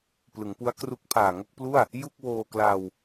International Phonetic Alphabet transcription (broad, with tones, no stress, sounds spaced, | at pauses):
p l ɯ˩˦ ŋ p u˦˥ a̯ k r u˦˥ k̚ pʰ aː˨˩ ŋ o˥˩ k̚ p l u˥˩ a̯ | j u˥˩ k̚ w oː˧ k l a˧ w